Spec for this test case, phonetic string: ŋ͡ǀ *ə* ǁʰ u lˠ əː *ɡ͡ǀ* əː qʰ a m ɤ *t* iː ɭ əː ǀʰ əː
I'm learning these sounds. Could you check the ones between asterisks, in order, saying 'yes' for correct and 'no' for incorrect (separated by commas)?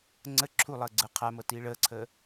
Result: yes, yes, yes